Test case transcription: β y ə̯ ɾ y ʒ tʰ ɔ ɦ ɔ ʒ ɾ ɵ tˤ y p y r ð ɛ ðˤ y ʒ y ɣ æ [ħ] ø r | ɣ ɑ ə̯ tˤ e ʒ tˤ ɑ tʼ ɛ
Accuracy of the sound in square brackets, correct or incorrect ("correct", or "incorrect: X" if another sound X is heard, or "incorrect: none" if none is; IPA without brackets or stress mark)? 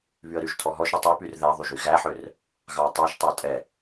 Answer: correct